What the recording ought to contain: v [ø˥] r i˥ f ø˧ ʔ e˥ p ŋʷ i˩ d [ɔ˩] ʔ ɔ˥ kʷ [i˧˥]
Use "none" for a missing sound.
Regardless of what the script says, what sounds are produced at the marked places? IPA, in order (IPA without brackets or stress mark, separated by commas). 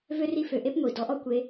ø˥, ɔ˧˥, e˧˥